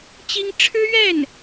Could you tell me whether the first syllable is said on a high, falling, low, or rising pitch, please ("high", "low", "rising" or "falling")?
high